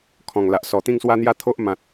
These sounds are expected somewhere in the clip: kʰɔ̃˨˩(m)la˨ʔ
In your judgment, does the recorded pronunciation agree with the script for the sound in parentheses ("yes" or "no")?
no